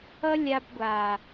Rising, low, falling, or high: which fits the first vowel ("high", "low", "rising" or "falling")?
high